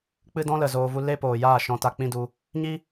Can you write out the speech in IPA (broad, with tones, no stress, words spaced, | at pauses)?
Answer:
k͡pɨ˦dɔ̃˦ lə˨zoː˧vu˦ le˦poː˨ jaː˦˨ʃɔ̃˧ta˧ k͡pĩ˦du˧ | ɲi˦